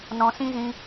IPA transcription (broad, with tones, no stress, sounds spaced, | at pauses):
n ɔ̃˨ s ĩ˦ z ĩ˧